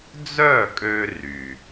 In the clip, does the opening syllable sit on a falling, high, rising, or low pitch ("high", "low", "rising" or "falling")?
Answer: falling